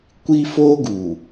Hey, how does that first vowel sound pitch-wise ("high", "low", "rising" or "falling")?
high